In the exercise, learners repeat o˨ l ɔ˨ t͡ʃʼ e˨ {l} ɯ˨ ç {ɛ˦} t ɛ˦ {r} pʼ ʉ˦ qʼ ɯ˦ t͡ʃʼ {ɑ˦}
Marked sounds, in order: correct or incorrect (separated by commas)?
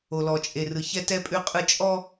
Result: incorrect, correct, incorrect, incorrect